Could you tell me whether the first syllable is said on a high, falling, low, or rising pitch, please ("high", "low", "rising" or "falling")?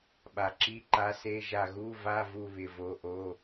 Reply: low